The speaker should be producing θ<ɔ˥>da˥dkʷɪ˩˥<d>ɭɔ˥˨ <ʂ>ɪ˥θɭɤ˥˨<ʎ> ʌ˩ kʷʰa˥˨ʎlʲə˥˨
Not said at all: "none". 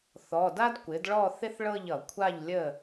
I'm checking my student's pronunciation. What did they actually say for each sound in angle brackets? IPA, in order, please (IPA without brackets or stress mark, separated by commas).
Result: ɔ˩˧˩, d, θ, ʎ